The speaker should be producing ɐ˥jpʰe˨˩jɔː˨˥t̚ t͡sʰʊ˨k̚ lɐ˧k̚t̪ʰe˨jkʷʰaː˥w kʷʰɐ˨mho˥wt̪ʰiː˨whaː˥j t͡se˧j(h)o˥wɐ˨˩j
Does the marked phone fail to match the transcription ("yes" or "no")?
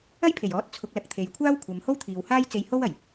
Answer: no